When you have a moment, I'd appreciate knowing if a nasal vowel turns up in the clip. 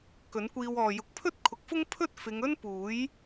no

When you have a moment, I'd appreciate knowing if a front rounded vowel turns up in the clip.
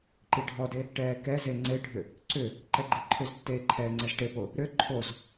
yes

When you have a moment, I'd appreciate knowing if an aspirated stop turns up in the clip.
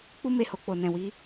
no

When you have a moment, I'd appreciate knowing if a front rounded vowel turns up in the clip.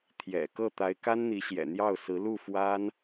no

